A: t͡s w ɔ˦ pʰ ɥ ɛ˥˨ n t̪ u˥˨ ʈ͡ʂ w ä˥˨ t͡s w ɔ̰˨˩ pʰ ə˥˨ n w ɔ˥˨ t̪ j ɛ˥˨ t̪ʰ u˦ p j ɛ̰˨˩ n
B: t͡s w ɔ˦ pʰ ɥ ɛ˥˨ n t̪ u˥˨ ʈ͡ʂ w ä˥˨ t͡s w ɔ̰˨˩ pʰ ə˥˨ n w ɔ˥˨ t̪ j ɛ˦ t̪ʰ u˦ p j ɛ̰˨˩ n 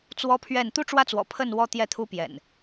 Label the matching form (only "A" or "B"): A